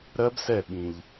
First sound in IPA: ɾ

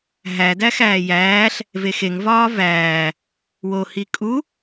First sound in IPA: ɦ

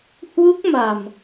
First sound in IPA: h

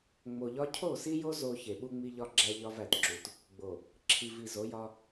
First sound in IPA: ŋ͡m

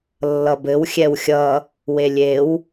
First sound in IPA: lː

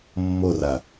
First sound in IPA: mː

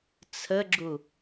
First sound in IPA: t͡sʰ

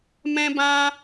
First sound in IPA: m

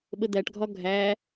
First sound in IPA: ɓ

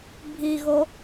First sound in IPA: bʱ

